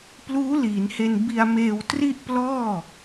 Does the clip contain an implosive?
no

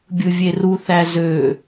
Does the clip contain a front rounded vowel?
yes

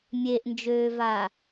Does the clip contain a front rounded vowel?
yes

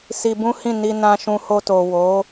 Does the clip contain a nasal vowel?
yes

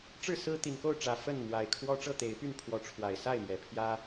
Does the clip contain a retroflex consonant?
yes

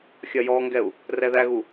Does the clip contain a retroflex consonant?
no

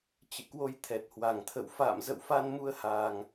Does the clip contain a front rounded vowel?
no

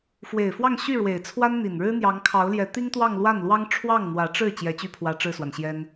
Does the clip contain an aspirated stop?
yes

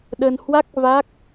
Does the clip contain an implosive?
yes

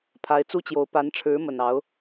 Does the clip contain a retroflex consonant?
yes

